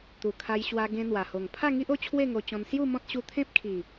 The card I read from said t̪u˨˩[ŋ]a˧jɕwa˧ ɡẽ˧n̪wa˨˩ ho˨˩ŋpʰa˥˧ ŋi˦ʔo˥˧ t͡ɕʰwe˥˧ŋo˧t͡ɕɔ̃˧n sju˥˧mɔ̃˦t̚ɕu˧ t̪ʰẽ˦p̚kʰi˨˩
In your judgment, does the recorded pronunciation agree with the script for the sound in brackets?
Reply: no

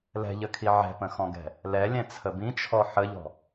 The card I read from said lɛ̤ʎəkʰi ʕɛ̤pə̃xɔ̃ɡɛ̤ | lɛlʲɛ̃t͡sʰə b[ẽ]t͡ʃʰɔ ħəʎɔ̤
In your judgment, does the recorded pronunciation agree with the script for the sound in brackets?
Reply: no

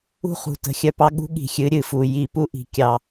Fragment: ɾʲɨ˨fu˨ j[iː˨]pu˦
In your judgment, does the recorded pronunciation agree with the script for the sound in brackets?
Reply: no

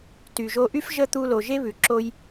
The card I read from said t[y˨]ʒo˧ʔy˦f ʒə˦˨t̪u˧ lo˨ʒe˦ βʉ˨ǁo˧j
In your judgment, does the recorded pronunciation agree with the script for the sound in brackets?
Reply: yes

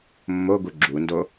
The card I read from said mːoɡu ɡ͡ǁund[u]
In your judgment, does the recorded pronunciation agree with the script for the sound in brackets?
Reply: no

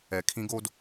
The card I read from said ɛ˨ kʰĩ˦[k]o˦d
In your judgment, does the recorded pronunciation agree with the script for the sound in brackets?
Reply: no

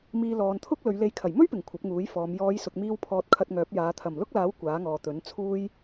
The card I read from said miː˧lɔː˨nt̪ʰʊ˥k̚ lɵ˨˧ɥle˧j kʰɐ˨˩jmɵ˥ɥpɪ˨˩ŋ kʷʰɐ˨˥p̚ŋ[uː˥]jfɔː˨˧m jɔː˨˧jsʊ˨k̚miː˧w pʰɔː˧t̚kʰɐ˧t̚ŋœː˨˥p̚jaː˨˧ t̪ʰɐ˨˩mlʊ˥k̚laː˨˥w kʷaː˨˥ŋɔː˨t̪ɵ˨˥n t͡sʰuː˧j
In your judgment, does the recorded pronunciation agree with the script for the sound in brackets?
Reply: no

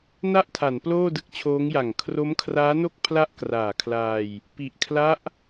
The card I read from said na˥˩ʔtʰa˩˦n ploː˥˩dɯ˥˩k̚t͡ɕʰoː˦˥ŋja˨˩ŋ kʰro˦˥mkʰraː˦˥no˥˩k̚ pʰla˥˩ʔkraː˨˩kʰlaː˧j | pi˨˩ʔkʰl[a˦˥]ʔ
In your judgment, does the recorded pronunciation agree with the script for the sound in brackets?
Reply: yes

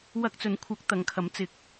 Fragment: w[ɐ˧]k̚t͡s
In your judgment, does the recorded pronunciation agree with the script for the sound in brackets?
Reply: yes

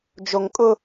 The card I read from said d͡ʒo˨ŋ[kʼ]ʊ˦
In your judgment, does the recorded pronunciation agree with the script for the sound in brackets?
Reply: yes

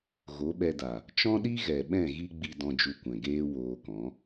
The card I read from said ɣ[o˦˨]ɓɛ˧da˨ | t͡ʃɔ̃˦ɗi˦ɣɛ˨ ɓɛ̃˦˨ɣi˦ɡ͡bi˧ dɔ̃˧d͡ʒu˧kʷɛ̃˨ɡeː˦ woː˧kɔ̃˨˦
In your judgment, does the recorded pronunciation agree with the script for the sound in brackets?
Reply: no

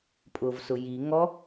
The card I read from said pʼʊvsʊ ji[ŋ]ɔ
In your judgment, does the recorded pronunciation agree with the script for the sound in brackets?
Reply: yes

